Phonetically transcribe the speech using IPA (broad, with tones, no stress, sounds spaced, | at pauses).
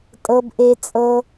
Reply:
tʼ ɤ˧ b ʔ e˧ t͡sʼ ɤ˧